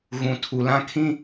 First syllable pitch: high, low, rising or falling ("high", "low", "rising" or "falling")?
low